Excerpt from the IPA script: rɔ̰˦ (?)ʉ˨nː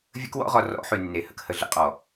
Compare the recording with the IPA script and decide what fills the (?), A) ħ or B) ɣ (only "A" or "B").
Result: A